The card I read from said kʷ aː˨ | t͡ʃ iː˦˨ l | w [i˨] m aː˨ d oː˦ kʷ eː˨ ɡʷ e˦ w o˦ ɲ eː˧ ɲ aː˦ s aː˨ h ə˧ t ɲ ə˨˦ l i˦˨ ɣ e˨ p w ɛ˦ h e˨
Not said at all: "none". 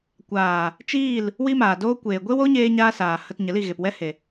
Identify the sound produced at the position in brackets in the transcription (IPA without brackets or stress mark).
i˦